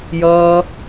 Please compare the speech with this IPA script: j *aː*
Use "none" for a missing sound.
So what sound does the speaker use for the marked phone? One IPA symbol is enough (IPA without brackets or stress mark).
ʌː